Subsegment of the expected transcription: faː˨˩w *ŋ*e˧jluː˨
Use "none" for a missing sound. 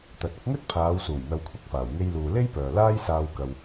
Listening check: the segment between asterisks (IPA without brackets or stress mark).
ŋ